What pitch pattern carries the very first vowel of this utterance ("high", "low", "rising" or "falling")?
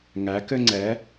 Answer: rising